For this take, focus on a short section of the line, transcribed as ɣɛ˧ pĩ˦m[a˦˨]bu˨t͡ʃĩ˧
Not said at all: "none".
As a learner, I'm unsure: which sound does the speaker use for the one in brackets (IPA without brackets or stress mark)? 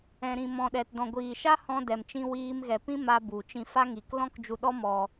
a˧